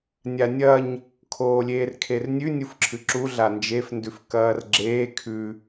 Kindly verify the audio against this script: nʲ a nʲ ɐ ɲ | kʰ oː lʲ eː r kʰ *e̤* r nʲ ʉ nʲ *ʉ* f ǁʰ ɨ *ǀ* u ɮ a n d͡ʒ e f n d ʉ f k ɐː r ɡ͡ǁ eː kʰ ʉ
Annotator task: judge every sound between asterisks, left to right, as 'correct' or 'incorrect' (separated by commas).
incorrect, incorrect, incorrect